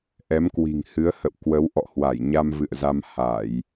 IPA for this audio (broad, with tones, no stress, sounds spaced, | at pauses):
ʔ ɛ˨˦ m k w i̤˨˩ ŋ h ɨ˨˦ ə̯ h ə̰˧˨ w k w ə˨˦ w ʔ ɔ̰˧˨ h w a˧˩ j ɲ a˧ m v ɨ̰˧˨ ə̯ z a˧ m h a˧˩˨ j